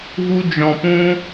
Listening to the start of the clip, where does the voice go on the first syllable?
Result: high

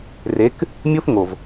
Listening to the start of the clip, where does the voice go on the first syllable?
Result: rising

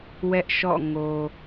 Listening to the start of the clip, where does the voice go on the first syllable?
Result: high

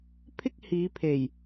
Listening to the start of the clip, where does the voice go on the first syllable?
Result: high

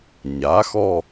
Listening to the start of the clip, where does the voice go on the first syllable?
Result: rising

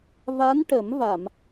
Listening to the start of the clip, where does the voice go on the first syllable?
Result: rising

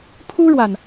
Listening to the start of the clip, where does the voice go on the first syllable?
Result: high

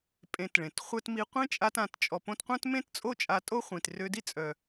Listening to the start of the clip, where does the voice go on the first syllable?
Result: low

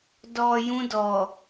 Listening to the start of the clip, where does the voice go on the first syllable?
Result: low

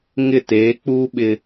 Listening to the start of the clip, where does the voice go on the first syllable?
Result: falling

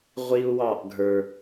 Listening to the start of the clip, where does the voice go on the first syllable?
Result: high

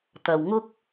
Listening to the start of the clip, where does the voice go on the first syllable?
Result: low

